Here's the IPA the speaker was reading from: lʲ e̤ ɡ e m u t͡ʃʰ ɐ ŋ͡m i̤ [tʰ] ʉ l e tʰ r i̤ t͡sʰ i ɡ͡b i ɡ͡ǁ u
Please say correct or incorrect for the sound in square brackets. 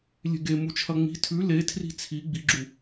correct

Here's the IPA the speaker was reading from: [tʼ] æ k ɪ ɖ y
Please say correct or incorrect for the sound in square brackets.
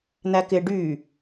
incorrect: n̪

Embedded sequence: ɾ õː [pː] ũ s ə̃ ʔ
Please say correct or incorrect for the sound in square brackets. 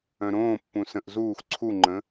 correct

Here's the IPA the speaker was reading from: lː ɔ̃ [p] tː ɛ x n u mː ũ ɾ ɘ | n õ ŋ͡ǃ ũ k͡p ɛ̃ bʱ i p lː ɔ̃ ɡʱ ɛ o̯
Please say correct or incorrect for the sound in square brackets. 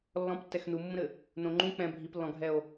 correct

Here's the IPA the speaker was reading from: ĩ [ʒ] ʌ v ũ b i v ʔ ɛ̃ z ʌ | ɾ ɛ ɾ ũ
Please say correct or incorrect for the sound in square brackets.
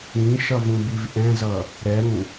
incorrect: ʃ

